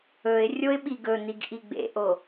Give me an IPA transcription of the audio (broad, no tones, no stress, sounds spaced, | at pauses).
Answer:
ɵ ɪ̯ rʲ o ɪ̯ ɓ i ɡ ɵ n̪ i ɡ ʔ i ɡ͡b ḛ ʔ o